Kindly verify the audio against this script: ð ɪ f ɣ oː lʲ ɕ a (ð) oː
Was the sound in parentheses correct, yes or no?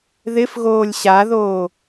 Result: yes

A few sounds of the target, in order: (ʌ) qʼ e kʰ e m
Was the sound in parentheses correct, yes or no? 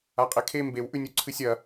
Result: no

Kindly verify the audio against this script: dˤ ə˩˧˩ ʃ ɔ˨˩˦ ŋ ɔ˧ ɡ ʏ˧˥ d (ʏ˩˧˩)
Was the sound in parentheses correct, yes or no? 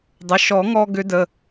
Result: no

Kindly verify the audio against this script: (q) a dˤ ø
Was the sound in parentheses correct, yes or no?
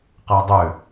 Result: yes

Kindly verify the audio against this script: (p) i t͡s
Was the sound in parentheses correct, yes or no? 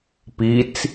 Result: yes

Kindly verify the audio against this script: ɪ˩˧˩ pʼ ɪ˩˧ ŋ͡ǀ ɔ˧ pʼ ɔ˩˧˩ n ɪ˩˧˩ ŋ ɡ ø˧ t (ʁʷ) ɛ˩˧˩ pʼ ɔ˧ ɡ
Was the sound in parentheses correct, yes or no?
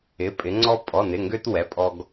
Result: no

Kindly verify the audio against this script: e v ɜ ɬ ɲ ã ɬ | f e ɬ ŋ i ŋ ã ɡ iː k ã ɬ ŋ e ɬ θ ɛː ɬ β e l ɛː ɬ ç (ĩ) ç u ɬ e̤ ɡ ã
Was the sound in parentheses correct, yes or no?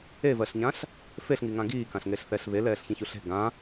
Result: yes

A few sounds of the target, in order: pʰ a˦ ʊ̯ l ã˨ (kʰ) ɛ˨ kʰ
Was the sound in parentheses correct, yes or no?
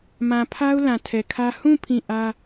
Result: no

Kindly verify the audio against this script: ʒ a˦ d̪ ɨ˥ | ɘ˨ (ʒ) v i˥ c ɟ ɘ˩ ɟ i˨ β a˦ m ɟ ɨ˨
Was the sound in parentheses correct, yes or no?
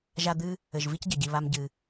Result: yes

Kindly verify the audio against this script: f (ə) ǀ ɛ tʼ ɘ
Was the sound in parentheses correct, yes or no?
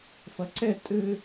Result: no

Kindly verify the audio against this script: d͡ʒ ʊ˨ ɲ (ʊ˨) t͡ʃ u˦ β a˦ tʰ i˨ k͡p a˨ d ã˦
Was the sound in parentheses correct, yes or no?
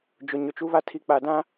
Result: yes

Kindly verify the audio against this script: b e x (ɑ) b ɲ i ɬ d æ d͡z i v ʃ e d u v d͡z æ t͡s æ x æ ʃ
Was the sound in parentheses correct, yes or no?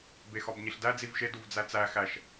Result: no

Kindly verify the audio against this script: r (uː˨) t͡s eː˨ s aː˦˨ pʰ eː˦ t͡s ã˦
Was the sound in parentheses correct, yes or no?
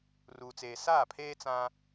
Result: yes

